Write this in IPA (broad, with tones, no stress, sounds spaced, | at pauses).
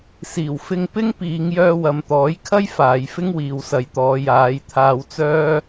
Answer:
s iː˨˩ w f ɪ˧ ŋ p ɪ˥ ŋ p iː˨˧ ŋ j œː˧ w ɐ˨ m t̪ ɔː˨˥ j kʰ ɐ˥ j f aː˨˧ j f ɪ˥ ŋ w iː˨ w s ɐ˨˧ j t̪ ɔː˨˧ j aː˨˧ j t̪ʰ aː˧ w t͡s œː˥